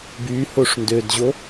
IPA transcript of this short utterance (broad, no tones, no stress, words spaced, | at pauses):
by hoʂndødʑo